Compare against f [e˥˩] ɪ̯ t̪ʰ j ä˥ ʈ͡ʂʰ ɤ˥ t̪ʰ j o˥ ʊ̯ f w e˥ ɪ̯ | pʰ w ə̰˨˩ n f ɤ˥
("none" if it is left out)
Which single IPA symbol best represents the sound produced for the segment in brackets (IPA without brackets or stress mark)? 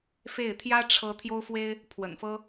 e˥˩